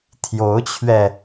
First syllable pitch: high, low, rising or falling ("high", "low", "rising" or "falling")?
rising